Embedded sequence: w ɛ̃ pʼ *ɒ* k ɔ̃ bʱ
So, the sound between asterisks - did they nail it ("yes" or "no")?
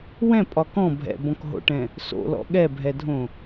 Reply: yes